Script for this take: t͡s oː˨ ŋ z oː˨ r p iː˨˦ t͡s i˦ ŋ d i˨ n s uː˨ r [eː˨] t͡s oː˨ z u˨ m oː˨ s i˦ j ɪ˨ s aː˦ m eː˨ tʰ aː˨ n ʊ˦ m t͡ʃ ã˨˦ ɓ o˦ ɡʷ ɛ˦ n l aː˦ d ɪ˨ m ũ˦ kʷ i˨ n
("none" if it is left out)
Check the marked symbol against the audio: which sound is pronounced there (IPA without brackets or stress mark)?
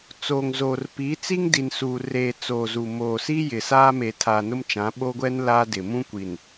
eː˨